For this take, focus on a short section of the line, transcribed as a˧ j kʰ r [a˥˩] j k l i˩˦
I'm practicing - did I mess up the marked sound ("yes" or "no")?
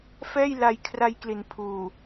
yes